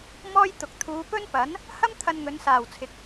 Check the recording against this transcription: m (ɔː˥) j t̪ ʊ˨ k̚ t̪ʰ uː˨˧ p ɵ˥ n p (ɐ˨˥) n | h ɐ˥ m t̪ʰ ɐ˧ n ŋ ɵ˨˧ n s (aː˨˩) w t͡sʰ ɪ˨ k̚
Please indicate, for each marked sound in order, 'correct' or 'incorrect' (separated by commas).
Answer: correct, correct, correct